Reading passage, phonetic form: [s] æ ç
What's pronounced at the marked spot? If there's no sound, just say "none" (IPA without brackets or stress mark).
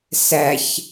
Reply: s